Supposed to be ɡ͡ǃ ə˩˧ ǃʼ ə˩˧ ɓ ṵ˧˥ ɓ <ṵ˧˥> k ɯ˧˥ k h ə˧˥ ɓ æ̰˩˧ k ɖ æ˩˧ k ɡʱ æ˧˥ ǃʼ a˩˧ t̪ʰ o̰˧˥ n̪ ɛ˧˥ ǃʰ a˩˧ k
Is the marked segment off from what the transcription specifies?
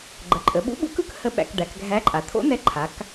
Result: no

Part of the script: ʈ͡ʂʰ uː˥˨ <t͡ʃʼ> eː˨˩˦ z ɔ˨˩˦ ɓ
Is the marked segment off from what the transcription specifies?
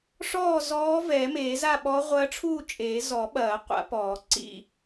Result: no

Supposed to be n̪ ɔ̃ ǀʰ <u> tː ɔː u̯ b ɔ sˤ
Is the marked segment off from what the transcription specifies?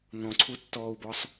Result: no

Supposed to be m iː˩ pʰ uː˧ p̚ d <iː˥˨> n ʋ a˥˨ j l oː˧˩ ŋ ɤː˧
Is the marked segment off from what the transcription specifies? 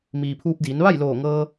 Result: yes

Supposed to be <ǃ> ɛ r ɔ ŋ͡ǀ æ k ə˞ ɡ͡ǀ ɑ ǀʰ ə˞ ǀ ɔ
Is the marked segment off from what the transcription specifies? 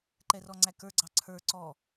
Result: no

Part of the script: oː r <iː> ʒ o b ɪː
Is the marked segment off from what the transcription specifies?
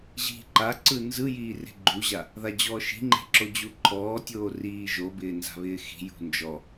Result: no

